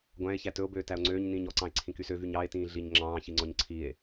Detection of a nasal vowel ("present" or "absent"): present